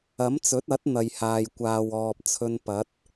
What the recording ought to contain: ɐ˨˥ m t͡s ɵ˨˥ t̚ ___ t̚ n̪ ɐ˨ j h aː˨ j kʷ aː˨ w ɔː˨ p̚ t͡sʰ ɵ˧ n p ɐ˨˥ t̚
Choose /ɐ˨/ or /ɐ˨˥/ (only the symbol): ɐ˨˥